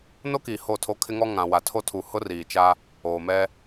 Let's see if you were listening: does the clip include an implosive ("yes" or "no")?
no